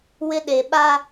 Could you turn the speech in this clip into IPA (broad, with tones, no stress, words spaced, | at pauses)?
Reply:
wɪ˦ɗe˨ ɓa˦